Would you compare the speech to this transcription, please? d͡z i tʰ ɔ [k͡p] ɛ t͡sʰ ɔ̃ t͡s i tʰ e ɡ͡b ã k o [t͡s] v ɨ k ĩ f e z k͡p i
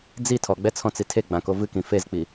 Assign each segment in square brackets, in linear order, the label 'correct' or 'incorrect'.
incorrect: ɡ͡b, incorrect: none

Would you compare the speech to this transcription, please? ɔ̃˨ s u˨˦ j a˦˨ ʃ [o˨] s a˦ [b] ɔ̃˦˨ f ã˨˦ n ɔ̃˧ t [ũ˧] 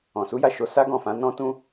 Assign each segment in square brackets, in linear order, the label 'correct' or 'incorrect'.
incorrect: o˨˦, incorrect: ɡ, correct

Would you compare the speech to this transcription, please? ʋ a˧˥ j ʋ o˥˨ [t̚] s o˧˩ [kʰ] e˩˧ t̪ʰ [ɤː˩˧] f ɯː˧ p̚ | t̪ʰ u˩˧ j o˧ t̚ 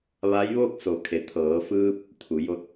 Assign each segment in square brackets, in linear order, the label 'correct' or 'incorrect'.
incorrect: k̚, correct, correct

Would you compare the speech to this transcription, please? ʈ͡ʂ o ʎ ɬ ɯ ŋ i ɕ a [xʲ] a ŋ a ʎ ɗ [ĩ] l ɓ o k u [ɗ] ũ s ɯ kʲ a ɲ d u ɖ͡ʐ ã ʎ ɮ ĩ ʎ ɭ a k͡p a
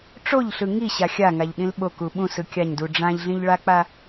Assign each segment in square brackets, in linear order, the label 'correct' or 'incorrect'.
correct, correct, incorrect: ɓ

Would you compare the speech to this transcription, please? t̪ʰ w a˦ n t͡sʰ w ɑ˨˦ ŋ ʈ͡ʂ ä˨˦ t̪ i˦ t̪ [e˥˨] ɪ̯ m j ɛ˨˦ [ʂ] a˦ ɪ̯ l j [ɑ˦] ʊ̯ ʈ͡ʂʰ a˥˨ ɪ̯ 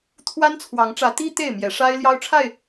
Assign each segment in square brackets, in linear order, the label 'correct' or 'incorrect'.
correct, correct, correct

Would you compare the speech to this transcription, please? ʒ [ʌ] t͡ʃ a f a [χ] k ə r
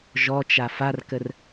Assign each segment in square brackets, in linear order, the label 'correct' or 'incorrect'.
incorrect: ɔ, incorrect: r

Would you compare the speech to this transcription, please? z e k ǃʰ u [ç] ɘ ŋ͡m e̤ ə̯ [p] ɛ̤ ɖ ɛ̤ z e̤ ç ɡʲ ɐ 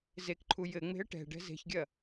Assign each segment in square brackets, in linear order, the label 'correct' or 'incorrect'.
incorrect: j, incorrect: ʈ

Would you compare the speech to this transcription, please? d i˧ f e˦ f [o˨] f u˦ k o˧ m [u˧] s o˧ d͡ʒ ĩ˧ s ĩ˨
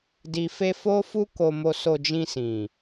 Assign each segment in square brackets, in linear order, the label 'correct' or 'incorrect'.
incorrect: o˦, incorrect: o˧

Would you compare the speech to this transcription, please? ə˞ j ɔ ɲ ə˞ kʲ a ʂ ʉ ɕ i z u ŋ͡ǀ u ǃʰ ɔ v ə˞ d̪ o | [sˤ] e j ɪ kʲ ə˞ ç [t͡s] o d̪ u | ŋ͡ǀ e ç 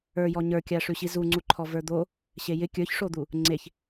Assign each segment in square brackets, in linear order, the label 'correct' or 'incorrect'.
incorrect: ɕ, incorrect: ʂ

